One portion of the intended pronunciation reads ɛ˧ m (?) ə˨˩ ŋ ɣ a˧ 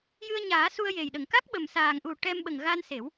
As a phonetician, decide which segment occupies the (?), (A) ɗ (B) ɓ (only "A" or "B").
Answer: B